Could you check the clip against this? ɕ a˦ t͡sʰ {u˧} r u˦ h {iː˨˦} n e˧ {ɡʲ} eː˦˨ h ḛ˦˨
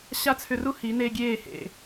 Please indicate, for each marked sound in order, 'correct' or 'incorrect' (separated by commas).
incorrect, incorrect, correct